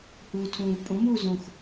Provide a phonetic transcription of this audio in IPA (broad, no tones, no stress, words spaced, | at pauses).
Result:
huːtʰũːvpʼõ muːzõx